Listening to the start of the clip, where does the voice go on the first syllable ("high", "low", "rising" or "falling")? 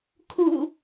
low